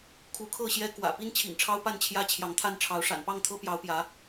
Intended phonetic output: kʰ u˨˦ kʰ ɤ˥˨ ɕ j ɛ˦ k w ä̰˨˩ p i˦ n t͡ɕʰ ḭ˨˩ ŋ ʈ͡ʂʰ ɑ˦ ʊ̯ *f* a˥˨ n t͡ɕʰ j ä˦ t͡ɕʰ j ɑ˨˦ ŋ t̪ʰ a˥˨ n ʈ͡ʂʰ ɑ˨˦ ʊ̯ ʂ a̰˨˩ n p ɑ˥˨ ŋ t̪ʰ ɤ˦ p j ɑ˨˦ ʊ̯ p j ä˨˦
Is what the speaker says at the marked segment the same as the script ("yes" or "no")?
no